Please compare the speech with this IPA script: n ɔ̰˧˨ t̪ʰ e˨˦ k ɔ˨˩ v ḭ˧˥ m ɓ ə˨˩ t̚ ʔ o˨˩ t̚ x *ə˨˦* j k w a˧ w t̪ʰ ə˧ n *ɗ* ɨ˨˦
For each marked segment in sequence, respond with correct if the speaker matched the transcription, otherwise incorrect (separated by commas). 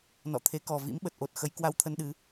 correct, correct